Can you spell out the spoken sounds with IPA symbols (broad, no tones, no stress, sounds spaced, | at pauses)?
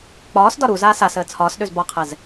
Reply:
k͡p ɒː s d ɒ ɾ u z aː s a s əː t͡sʰ ɒː s ɗ ø z b ɒ qʰ ɛ z